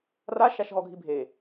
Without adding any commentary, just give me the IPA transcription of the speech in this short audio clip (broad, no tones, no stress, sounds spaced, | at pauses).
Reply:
r a ʃ a ʃ ɦ ɔ ɡʱ i bʱ e